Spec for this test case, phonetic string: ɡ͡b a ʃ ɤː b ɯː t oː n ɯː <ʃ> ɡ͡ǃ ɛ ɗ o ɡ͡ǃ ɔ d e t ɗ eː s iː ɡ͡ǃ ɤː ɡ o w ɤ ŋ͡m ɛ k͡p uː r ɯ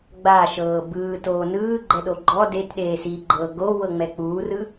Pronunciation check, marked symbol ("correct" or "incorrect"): incorrect